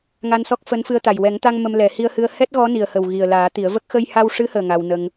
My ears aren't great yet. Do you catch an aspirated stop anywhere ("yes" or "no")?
no